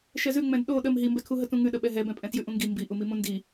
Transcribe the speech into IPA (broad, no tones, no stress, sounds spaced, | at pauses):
ʃ ɛ z ʉ ŋ͡m ɛ̃ d ɗ o ɗ ə m ɦ i m b ɛ kʰ u ɦ ə t ũ ŋ ʉ ɗ ə ɓ ɛ ɦ ɛ b ɛ̃ pʼ ɛ̃ t j ʉ ʔ ũ ŋ ɡ i m b i ʔ u m i m ũ n d i